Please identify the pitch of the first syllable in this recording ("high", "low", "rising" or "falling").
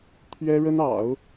high